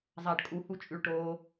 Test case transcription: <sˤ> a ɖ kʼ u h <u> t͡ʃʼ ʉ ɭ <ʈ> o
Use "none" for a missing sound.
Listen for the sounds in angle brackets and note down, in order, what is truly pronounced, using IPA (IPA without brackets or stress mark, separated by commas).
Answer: zˤ, u, ʈ